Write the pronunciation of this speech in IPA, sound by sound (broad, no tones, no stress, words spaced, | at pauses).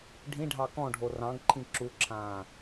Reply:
ɖʱĩɖʱɑ kɔ̃ɖʱo rɑ̃ɡǃʰĩ ǁuǁʰãː